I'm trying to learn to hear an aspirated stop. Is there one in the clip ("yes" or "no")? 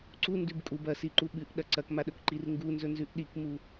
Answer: no